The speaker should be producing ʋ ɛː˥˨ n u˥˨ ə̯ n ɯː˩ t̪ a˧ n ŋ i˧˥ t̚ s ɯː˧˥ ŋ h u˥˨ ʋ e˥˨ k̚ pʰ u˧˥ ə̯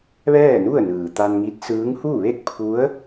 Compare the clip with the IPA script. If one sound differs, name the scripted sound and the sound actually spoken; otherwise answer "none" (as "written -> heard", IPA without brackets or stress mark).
none